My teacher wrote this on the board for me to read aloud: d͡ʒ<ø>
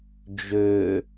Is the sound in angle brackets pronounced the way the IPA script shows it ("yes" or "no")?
yes